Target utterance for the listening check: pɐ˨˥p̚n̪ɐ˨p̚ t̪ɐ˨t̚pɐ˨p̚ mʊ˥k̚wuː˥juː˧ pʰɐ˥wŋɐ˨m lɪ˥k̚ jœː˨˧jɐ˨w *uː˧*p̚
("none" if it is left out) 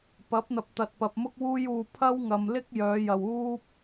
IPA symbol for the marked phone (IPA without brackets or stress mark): uː˥